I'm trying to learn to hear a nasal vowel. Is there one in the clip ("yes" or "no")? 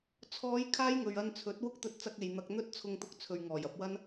no